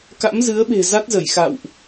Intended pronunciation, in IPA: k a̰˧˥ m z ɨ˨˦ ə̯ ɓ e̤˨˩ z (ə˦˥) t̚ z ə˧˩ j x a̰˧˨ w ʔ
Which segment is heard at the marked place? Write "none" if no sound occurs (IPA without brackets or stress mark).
a˦˥